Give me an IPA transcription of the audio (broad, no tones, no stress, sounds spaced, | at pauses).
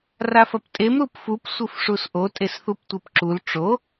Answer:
r a f ɐ p tʼ e m ɾ u p f u p sʷ ɨ f ʂ u s ʔ o tʼ e s θ u p tʷ e p ǁ u l ʈ͡ʂ o